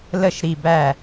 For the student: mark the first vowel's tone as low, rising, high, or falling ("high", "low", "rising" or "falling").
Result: falling